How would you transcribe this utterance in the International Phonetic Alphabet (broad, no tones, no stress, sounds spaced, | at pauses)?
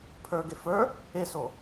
pʰ ə˞ ɡ e f ə˞ | e s o